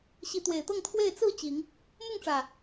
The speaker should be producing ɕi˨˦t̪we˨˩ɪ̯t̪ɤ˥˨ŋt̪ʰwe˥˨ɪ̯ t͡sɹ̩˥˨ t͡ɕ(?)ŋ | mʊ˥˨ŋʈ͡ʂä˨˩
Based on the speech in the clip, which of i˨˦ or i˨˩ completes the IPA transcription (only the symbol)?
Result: i˨˦